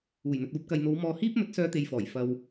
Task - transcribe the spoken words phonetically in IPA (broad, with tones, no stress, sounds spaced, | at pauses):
uː˨˩ j n̪ ɵ˨ t̚ uː˧ p̚ k ɐ˨ j n̪ o˨˧ w m ɔː˧ h iː˥ p̚ m ɵ˨˥ t̚ s œː˧ t̪ e˨ j f ɔː˨˩ j f ɐ˧ w